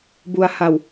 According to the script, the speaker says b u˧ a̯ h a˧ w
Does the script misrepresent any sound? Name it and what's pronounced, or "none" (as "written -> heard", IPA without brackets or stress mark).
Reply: none